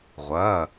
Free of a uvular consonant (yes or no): no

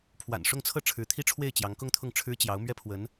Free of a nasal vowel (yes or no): yes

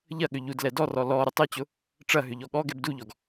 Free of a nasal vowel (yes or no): yes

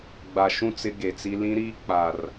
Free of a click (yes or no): yes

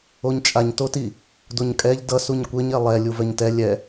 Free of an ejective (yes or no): no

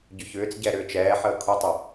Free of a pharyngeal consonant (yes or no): no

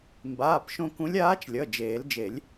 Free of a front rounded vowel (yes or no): yes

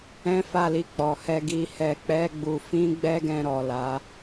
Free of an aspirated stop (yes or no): yes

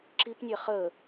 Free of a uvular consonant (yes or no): no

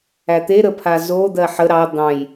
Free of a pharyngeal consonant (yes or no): no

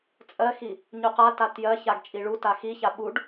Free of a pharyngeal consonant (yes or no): yes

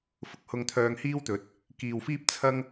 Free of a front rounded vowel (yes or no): no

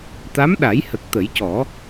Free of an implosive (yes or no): no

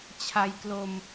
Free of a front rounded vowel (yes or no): yes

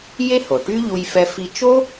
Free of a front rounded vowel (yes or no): no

